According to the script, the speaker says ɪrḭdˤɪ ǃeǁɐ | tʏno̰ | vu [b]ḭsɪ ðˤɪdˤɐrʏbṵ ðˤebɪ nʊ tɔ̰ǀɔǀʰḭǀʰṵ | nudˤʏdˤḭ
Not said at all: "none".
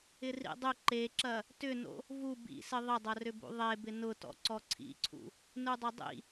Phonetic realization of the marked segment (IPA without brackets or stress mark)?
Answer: b